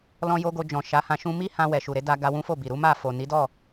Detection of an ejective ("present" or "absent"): absent